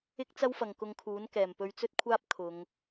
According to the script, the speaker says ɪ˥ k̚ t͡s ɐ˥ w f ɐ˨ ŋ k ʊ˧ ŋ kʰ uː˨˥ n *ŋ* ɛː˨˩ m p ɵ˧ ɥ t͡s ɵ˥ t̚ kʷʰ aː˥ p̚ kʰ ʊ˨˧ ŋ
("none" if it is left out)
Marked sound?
k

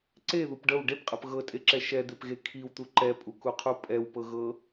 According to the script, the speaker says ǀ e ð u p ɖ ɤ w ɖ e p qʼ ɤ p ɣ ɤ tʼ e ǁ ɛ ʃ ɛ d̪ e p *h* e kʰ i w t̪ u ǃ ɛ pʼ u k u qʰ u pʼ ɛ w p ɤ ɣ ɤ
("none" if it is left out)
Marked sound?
ɣ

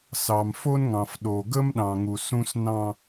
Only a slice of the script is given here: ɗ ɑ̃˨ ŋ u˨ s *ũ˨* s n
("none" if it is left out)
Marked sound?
ũ˦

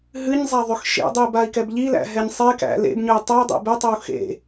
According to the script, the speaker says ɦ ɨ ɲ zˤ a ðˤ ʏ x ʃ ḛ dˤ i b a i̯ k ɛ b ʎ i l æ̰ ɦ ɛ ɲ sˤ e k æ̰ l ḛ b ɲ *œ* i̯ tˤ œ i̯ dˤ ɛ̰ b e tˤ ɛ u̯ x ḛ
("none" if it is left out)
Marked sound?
œ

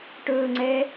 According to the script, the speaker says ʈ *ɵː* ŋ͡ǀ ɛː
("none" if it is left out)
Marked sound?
ɵː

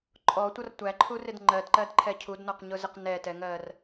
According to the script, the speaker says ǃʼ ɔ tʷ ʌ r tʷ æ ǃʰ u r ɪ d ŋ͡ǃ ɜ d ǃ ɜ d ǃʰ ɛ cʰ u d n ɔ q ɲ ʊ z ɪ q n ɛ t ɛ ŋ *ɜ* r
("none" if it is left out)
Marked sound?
ɜ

